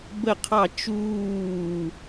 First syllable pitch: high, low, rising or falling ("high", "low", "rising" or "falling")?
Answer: falling